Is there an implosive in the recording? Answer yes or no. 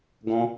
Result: no